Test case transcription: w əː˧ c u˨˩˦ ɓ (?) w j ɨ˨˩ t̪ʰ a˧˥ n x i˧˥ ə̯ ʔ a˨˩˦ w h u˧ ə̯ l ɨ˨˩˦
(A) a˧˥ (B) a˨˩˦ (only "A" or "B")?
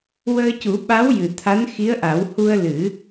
A